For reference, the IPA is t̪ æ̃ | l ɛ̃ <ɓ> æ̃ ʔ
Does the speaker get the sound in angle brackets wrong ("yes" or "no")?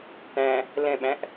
no